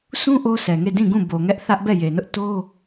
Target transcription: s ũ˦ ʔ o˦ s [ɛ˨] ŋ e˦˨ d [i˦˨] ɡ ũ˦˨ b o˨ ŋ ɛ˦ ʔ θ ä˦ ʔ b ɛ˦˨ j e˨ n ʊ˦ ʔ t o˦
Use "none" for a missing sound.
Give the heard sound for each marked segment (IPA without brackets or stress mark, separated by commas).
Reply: ɛ˨, ĩ˦˨